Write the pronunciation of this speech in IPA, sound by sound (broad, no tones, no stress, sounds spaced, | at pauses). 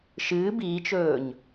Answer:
ʃ ɨː b iː t͡ʃ ɵː ɲ